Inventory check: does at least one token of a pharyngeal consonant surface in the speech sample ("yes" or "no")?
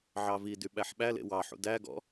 yes